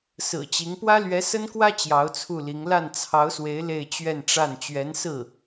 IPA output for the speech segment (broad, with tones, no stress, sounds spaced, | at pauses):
s ɹ̩˨˩ t͡ɕ i˧˥ ŋ p w ä˥ l ɥ ɛ˧˥ s ə˥ n k w ä˥ t͡ɕ j ɑ˧˥ ʊ̯ t͡sʰ u˥˩ l i˧˥ ŋ l a˥˩ n t͡sʰ ɑ˧˥ ʊ̯ s w e˧˥ ɪ̯ l e˥˧ ɪ̯ t͡ɕ ɥ ɛ˥˧ n ʈ͡ʂ a˥˩ n t͡ɕ ɥ ɛ˧˥ n s ɹ̩˥˩